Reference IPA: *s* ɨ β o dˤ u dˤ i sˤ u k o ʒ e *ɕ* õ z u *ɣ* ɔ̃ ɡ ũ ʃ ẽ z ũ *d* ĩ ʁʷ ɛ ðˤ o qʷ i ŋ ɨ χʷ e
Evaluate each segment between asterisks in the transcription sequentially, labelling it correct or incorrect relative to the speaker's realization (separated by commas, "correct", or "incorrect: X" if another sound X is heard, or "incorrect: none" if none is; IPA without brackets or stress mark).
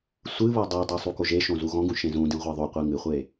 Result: incorrect: sʷ, incorrect: ʃ, correct, correct